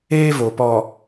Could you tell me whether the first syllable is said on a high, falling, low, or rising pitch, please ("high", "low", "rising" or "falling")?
high